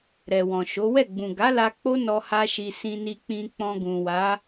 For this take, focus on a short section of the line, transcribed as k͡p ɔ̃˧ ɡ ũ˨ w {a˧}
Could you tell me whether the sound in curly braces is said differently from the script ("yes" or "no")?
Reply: yes